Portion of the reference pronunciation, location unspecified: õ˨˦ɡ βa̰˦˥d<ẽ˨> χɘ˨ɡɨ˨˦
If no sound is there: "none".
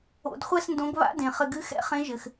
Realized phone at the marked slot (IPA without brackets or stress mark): ẽ˨